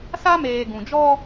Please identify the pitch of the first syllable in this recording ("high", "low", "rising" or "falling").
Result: high